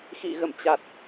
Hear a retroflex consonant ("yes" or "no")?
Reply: no